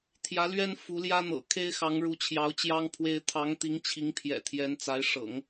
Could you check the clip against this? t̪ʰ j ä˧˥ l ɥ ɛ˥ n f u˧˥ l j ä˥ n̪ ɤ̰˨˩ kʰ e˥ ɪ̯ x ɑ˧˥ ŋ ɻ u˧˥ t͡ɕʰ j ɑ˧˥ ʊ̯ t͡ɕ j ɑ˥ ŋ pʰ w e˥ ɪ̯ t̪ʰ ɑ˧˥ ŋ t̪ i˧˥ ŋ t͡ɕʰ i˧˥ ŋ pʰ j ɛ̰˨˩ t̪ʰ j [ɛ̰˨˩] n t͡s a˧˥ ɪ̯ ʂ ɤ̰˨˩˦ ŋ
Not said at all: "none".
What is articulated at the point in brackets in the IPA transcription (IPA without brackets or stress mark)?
ɛ˧˥